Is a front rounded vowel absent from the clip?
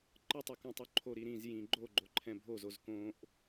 yes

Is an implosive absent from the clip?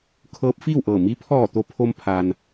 yes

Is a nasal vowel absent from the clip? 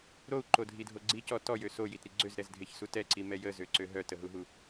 yes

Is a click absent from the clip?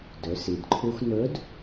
no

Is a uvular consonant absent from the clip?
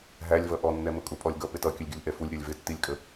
yes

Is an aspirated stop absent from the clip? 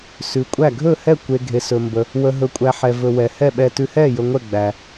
yes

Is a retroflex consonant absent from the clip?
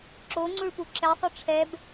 no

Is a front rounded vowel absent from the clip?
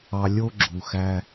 yes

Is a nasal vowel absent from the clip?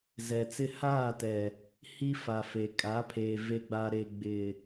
yes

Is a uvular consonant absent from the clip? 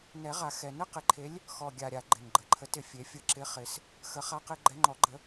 no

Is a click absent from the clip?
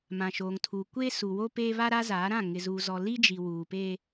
yes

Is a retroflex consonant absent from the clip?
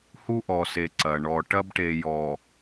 no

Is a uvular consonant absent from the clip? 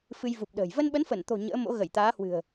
yes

